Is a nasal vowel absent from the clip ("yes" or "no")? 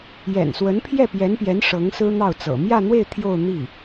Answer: yes